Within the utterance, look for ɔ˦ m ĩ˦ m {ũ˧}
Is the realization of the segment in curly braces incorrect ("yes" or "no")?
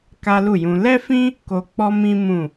yes